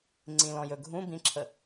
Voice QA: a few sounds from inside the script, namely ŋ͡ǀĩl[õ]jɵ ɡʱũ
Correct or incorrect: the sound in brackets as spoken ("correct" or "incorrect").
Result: incorrect